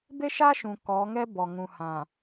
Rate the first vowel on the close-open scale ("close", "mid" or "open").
mid